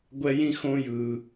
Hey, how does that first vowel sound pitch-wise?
high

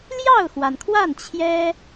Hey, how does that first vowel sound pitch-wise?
falling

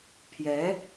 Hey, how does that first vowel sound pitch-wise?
rising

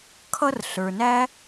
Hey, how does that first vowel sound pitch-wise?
high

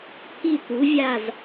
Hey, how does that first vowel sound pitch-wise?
falling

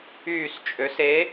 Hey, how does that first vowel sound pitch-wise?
falling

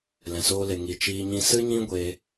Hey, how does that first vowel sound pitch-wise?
low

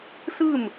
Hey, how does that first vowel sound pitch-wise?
falling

